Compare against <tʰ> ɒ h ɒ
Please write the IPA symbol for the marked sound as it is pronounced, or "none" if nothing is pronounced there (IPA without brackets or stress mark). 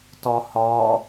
t